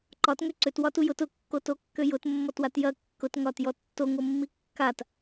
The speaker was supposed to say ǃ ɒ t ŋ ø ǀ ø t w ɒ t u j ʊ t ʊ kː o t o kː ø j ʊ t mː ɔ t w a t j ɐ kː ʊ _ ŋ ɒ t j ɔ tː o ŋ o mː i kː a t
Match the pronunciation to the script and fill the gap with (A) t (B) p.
A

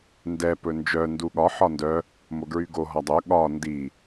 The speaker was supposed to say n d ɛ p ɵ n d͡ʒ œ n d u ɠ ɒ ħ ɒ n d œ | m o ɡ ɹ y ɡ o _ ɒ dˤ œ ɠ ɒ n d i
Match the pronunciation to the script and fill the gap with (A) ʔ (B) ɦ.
B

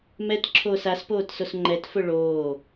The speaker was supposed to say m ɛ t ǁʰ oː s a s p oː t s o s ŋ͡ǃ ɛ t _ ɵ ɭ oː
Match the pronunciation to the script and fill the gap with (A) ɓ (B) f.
B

